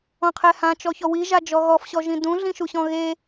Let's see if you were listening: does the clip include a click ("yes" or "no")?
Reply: no